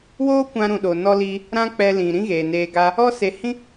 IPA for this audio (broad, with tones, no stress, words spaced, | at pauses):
woː˦kʷã˧ ɾũ˨ɗo˨ nɔ˧li˧ | ɾã˦k͡pɛ˧ lĩ˨ ɾĩ˦ɣeː˨neː˧ɡa˦ | ɔ˦ se˨ hĩ˦